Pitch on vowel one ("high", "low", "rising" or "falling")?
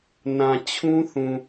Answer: low